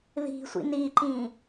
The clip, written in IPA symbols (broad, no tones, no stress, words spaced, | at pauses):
ði̤sʷḭn iǃĩ